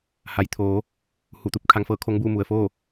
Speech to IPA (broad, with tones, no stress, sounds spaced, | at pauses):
h a˩˧ j t̪ʰ oː˩˧ | h u˧˩ t̪ u˧˩ p̚ kʰ a˧ ŋ f ɤː˥˨ kʰ o˧˥ ŋ b uː˥˨ m u˩ ə̯ f oː˥˨